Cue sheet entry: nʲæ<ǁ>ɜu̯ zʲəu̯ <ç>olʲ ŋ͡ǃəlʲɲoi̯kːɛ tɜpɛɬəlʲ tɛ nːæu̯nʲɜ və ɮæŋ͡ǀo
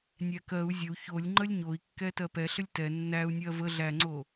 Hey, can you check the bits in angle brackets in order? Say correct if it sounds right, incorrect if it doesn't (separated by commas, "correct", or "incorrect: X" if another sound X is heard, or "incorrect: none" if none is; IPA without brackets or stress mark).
incorrect: k, correct